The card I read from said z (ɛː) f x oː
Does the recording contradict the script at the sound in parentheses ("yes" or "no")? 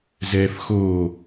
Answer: no